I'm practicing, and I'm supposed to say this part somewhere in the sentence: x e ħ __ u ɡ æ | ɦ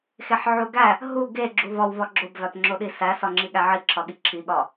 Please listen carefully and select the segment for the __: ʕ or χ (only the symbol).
ʕ